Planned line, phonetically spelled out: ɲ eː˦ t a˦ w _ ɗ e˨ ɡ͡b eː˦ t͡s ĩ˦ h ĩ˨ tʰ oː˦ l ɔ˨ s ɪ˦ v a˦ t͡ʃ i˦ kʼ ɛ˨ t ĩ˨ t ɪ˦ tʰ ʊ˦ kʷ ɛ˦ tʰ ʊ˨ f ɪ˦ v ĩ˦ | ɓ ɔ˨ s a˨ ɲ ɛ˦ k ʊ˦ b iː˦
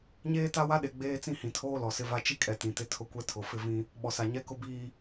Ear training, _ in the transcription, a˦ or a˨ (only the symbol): a˦